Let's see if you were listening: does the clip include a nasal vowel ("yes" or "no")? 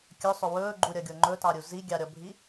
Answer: no